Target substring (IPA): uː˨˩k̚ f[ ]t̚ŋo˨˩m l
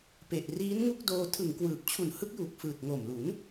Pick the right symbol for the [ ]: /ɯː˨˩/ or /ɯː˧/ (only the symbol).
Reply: ɯː˨˩